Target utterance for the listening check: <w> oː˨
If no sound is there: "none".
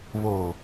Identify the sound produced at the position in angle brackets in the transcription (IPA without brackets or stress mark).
β